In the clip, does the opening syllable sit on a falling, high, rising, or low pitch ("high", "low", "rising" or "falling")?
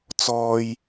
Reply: high